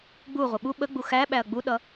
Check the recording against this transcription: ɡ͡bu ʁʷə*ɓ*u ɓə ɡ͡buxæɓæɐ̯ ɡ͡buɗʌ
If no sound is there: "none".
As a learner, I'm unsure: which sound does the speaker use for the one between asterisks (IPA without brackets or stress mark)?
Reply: ɓ